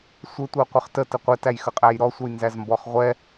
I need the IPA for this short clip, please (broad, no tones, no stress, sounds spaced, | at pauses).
sʷ ɘ tʷ ɛ qʷ ɘ χ t ə t ə qʷ ɛ t æ j x ə qʼ æ j ɾ ɔ sʷ ə j n z æ z m b ɔ χ ʁʷ ɛ